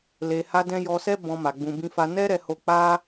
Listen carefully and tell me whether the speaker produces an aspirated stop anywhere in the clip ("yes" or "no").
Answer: no